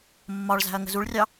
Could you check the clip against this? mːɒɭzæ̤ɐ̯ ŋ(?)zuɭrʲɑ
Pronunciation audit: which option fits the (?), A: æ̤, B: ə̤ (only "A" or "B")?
B